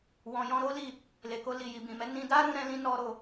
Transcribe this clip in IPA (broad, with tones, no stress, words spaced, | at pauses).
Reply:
wɔ̃˨jɔ̃˧ ɾo˦li˦˨ | le˨ko˧ li˨ji˨bĩ˨mɛ˨˦ nĩ˧da˦ ɾũ˦ɾɛ̃˦lĩ˦ nɔ˦ɾo˧